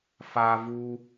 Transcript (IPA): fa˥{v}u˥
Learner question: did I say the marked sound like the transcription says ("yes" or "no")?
yes